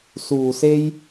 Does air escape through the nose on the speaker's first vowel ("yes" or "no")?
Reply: no